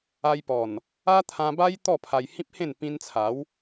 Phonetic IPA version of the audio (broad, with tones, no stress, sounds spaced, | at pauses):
a˧ j p ɔ˨˩ n | a˦ t̪ʰ ã˧ b a˦ j t̪ ɔ˥˧ pʰ a˧ j h ĩ˦ p̚ h ẽ˥˧ n p ĩ˧ n t͡sʰ a˨˦ w